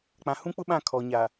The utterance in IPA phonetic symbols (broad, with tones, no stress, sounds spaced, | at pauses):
k͡p ã˨ h ũ˦ k͡p ʊ˦ ɓ ã˦˨ kʰ ɔ˨ ɲ a˨